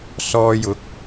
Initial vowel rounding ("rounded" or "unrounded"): rounded